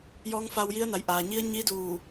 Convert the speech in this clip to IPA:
j ɔː˧˥ ŋ f a˧ w j i˧˥ ə̯ n a˩˧ j ʔ aː˩ ɲ i˧˥ ə̯ ɲ i˧˥ d uː˧˩

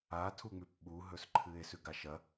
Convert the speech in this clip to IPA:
a tʰ u ŋ͡m ʉ p ɓ u ɦ ɵ s ǃʰ ɨ e̯ s ʉ ɡ a ʃ ɐ

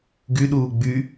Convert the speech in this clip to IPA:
ɡ y ɗ uː ɡ͡b y

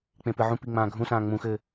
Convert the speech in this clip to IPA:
k͡p ẽ p ɨ ʕ ũ p i ŋ͡m ãː ɡʱ ũ s ãː ŋ͡m ũ x ɘ

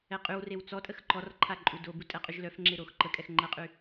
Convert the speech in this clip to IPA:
ɛ qʼ y w r e w t͡s ɔ tʼ ə x ǃ ɔ r ǃʰ a ǃʼ u d o b u tʼ ɛ qʼ y ʒ l œ f ŋ͡ǁ e ɾ o x ǃ ə kʼ ɛ x ŋ͡ǃ ə qʼ y

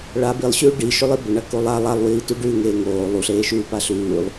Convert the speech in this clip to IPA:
ɭ a b i lˠ ɕ ʉː ɖ i ʃ ɵ lˠ i b ɵ ɳ ɐ k o lˠ a lˠ a lˠ w iː t ʉ ɖ ʉ ŋ eː ŋ oː lˠ u ɬ eː ʃ ʉː p a ɬ ʉː lˠ

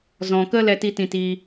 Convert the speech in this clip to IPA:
z ɔ̃˨ k ə˦ l ɛ˦ t i˦ t ĩ˧ t iː˧

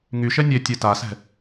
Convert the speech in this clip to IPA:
ŋ y ʃ ɛ nʲ e tʲ e t a s ɛ̤

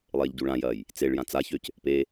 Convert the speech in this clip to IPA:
lˠ eː ʎ ɟ u ɭ ã j ɐː j | t͡s e ɭ j ã t͡s a ç ø c | p e

